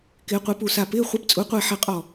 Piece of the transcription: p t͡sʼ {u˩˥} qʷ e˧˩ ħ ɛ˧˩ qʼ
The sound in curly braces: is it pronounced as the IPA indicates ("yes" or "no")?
yes